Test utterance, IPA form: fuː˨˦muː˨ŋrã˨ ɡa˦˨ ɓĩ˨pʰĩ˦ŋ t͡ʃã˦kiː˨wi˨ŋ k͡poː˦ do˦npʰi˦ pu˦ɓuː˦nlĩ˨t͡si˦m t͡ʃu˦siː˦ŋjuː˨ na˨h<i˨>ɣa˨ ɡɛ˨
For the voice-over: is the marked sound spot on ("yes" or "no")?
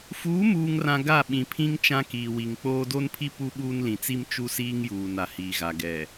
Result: no